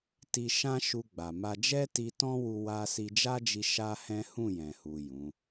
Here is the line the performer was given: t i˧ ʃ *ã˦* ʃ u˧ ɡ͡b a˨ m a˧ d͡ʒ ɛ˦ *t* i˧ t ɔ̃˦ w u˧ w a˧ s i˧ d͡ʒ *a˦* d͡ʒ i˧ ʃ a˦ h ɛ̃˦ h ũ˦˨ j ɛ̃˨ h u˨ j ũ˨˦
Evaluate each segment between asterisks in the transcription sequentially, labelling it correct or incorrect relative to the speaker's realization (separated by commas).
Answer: correct, correct, correct